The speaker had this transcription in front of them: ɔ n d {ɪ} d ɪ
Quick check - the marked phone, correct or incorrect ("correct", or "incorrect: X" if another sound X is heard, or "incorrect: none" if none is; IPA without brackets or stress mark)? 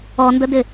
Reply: incorrect: ə